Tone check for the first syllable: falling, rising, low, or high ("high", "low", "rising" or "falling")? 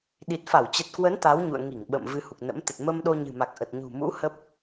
low